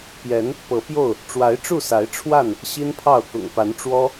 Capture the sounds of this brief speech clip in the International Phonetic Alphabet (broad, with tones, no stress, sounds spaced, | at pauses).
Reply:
p j ɛ˨˦ n | p ɤ˨˦ p j o˥˨ ʊ̯ | ʈ͡ʂ w a˨˦ ɪ̯ ʈ͡ʂ u˥˨ s a˨˦ ɪ̯ ʈ͡ʂʰ w a˥˨ n | ɕ i˦ n pʰ ɑ˥˨ ʊ̯ k ʊ̰˨˩ ŋ p a˨˦ n ʈ͡ʂ w ɔ˦